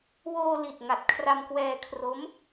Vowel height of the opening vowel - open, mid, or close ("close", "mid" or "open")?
mid